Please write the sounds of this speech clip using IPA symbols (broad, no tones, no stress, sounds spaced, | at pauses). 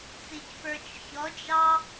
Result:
t͡s i c p ə˞ t͡ʃ ç ɔ d͡ʒ ɑ